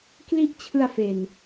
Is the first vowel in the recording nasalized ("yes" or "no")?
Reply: no